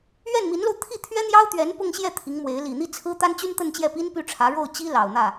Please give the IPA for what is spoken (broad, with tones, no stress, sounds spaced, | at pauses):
ɥ ɛ˥˩ n m i˧˥ n l o˧ ʊ̯ t̪ʰ i˥˩ t̪ʰ ɥ ɛ˥ n̪ j ɑ˥ ʊ̯ t̪ ɥ ɛ˧˥ n p ʊ˥˧ ŋ ɕ j ɛ˥˩ t̪ʰ i˧˥ ŋ m w e˧˥ ɪ̯ l i˨˩ n̪ i˥ t͡sʰ ɹ̩˥ t̪ a˥ n t͡ɕ y˥ n t̪ ə˥˧ n t͡ɕ j ɛ˥˩ p i˥ n p y˥˩ ʈ͡ʂʰ ä˧˥ ɻ o˥˩ ʊ̯ t͡ɕ i˥ l ɑ˨˩ ʊ̯ n̪ ä˥˩